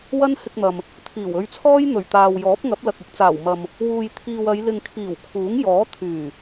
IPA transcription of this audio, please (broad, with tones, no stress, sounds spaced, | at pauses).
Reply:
w ɐ˥ n h ɪ˧ k̚ n̪ ɐ˨ m | t̪ʰ iː˨˩ w ɵ˧ ɥ t͡sʰ ɔː˥ j n̪ ɵ˨˩ ɥ t̪ aː˨ w j ɔː˨˥ p̚ ŋ ɐ˨˥ p̚ l ɐ˨ k̚ ɪ˨ k̚ t͡s aː˨˩ w m ɐ˨ m | w uː˨ j t̪ʰ iː˨ w ɐ˨˧ j l ɪ˨ ŋ kʰ iː˨˩ w kʰ uː˨˥ ŋ j ɔː˨˥ t̪ʰ yː˨˩